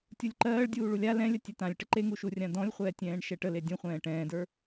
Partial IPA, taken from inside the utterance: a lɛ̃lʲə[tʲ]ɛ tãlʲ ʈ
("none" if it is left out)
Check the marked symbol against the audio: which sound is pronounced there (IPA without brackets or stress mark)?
tʲ